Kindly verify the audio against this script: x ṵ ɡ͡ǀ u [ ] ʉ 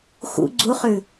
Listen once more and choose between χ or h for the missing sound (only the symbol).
χ